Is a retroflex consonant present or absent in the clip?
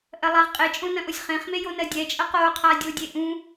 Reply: absent